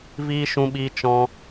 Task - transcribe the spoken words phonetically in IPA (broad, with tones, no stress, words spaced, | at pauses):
viː˦ ʃũ˦ɓiː˦ t͡ʃɔ̃˦